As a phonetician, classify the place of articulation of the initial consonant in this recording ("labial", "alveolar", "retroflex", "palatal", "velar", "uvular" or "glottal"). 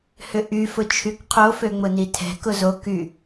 glottal